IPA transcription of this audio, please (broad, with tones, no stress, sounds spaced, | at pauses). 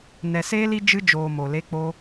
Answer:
n ɛ˨ s eː˦ l i˦ d͡ʒ ɨ˧ d͡ʒ oː˨ m o˨ l e˧ k͡p o˧